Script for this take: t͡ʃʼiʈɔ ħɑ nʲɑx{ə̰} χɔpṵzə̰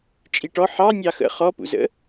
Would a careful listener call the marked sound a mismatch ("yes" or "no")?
no